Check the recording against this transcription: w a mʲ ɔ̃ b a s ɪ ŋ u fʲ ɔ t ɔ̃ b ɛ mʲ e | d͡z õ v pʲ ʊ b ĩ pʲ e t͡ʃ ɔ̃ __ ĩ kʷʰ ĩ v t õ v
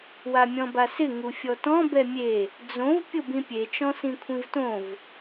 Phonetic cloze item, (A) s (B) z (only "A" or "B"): A